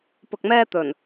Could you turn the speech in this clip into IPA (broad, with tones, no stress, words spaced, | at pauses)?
pʊ˧k̚mɛː˥ t̪ɵ˨˩n